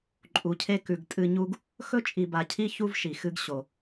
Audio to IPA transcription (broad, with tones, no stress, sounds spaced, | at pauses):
ǃʼ u˨ cʰ e˦ k ʉ˨ ɡ tʼ ɨ˦ ɲ u˥ ɡ | x ɵ˦ t͡ʃʼ i˨ b a˨ cʰ i˥ ç u˦ v ʃ i˩ x ɨ˦ ɡ ɕ o˩